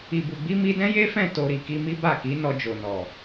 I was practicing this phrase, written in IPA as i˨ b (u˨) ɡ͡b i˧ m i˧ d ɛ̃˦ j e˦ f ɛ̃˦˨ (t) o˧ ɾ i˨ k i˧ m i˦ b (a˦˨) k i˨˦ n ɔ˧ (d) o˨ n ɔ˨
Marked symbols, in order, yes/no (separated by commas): yes, yes, yes, no